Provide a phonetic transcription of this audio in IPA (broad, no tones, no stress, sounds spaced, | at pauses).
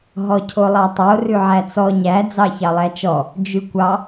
ɦ ɔ cʰ o lˠ ɑ tˤ o r ʉ ʕ æ t͡s ɔ ɲ æ d͡z ɑ ç ɑ lˠ æ t͡ʃ ɔ | d͡ʒ ʉ kʷ ɑ